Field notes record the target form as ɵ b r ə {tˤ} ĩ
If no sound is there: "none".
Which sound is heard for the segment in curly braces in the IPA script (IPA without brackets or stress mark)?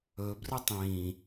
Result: tˤ